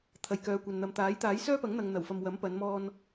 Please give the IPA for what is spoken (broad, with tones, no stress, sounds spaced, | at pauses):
t̪ʰ ɐ˨ j k œː˨ kʷ ɐ˨ n n̪ ɐ˨ m t̪ aː˨˥ j t̪ aː˨˥ j s œː˥ p ɐ˨˥ ŋ n̪ ɐ˨ ŋ n̪ ɐ˨˩ w f ɐ˨ m w ɐ˨˥ m p ɐ˨˧ n m ɔː˧ n